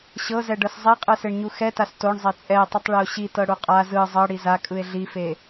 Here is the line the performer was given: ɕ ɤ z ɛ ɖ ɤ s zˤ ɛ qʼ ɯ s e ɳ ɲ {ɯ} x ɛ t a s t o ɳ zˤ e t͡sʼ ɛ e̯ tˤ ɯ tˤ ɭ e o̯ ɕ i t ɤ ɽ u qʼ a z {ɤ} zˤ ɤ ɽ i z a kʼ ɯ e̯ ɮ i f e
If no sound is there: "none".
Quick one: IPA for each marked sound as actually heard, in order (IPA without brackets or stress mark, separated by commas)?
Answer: u, ɯ